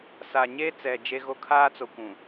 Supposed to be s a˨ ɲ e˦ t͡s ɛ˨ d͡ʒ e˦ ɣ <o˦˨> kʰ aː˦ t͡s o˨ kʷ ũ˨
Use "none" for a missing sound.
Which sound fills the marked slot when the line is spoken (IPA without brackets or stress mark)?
o˦